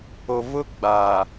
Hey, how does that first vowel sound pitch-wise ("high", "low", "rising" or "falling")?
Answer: low